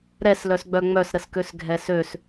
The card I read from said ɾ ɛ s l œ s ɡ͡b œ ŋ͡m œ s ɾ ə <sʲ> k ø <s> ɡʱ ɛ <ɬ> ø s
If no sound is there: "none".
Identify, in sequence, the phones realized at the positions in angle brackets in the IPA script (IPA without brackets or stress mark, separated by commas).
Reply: s, s, s